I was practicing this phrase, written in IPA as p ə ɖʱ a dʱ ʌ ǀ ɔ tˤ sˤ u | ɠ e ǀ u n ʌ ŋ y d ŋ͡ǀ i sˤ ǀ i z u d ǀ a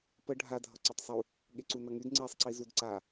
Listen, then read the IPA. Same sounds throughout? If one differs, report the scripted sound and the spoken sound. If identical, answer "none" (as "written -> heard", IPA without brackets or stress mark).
none